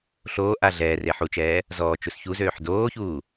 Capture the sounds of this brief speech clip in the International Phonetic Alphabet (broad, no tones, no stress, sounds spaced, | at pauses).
ɬ oː ʔ a ɮ ɛː r e ħ u t͡ʃ ɛː | z ɔː t͡ʃ u s ç u z øː ħ d oː ç uː